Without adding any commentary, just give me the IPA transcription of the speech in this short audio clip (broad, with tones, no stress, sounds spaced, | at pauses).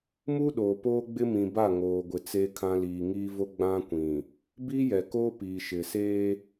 m u˦ ɗ oː˨ p oː˦ ɡ͡b ɪ˦ m ĩ˨ b a˦˨ ŋ oː˨ ɡʷ ɪ˨ t͡s eː˨ kʰ ã˨ l iː˨ ŋ iː˦ v o˦ ɡ͡b ã˦ kʷ ĩ˨ | b iː˦ j ɛ˨ k oː˦ p iː˨ ʃ ɪ˨ s eː˦